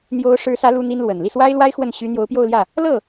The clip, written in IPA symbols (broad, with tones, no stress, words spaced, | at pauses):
n̪jo˧˥ʊ̯ʂɻ̩˧˥sä˧˥ lu˥n̪i˥nlwə˨˩n li˥˩swa˥ɪ̯lwa˥ɪ̯ xwə˥˩n ɕy˧˥ n̪jo˧˥ʊ̯pjo˥˧ʊ̯ljä˥˩ | lɤ˥˩